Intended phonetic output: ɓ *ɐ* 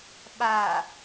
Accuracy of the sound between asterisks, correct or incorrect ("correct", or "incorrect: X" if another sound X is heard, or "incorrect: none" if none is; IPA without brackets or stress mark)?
incorrect: a